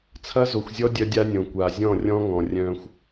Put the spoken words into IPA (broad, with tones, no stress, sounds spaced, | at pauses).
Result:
t͡sʰ ɐ˦ z o˨ xʷ zʲ ɔ˦ dʲ œ˦ dʲ a˦ nʲ õ˨ kʷ a˨ zʲ ɔ̃˦˨ rʲ ɔ̃˦ ŋ ɔ̃˨ rʲ œ̃˦ xʷ